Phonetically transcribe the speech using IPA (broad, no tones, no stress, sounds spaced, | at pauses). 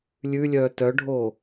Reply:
lʲ ʉ lʲ œː t œ ɖʱ oː